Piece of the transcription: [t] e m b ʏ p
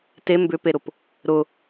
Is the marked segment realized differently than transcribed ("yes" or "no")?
no